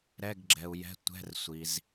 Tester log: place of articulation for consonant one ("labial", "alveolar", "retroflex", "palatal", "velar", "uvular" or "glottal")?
alveolar